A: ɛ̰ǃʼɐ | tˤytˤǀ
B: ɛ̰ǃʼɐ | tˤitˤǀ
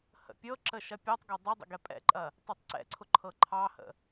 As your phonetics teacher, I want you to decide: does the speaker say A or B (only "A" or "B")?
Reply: B